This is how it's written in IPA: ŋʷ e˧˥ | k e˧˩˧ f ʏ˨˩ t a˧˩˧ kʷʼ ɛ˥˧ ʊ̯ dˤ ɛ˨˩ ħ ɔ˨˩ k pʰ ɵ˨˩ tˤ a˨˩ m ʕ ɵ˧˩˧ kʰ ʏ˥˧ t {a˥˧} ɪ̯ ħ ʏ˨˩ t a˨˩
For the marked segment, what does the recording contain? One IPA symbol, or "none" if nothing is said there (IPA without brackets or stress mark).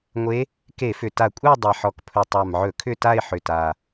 a˥˧